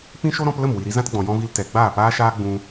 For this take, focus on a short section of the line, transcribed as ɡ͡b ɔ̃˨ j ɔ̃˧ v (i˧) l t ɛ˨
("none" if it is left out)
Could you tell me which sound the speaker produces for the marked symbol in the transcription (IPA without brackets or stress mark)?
i˧